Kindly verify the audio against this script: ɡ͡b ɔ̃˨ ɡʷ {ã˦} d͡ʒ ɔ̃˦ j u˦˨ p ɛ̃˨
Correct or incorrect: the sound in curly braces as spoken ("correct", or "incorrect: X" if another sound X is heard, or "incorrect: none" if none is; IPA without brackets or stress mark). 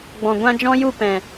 correct